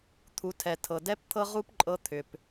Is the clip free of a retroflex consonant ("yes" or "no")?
yes